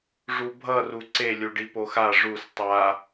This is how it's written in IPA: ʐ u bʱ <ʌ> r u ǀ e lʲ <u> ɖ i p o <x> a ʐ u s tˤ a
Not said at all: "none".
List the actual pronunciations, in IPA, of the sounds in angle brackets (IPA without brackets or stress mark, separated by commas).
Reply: ʌ, u, x